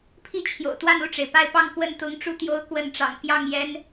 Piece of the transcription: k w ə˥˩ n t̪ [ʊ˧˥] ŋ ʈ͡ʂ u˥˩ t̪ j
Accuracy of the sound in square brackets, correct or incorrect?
correct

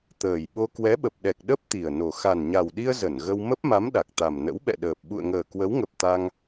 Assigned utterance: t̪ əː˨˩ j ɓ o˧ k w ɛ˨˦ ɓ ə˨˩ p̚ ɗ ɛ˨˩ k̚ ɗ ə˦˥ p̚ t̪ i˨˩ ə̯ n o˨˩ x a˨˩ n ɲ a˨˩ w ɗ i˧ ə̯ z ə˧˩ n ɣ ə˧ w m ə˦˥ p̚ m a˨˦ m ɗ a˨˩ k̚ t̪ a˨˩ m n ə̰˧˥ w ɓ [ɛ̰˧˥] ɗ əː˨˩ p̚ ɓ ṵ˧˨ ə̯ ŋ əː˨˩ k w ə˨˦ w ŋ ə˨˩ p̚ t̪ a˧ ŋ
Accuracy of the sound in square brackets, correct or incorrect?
incorrect: ɛ̰˧˨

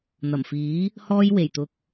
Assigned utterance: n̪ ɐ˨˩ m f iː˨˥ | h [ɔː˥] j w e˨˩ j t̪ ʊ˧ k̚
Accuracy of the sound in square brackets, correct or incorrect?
correct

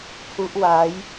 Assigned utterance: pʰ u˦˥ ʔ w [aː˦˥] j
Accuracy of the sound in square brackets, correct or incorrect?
correct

